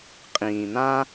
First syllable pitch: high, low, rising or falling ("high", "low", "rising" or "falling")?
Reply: low